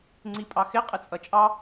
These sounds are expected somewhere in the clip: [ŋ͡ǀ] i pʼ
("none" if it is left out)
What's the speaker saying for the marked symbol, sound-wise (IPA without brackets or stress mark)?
ŋ͡ǀ